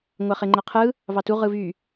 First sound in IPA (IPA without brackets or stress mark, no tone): ŋʷ